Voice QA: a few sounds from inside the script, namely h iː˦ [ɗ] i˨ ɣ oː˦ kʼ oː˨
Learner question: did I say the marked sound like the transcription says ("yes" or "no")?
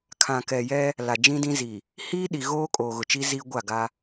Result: yes